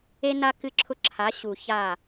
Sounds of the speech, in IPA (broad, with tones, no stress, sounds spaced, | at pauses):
e˦ n a˦ k ɨ˦ ǁʰ ʊ˦ ǁʰ a˨˦ ɕ u˨ ç a˦˨